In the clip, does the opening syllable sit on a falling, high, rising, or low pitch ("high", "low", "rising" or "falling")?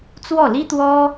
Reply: falling